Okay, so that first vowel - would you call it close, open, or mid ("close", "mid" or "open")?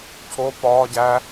mid